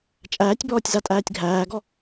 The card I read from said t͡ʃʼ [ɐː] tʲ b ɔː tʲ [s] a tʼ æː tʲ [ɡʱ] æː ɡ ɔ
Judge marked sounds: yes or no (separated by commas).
no, no, yes